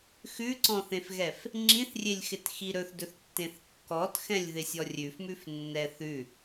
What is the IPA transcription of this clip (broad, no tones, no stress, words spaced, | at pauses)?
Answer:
xʉǀɔ̃θẽfɣɛf | ŋ͡ǁĩθrʲelʲxɪt xiɾɵθdɵθtːẽθ kːɔtxɛ̃lʲ ðɪsʲɔrʲʉfmʉf nːɛθʉ